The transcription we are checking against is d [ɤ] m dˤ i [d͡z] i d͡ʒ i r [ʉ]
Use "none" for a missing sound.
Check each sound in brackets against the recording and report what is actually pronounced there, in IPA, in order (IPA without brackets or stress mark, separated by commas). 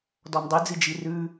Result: ɔ, d͡z, ʉ